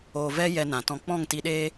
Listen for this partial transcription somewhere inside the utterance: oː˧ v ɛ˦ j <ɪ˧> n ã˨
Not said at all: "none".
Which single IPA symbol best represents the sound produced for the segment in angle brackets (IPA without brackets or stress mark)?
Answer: ɛ˧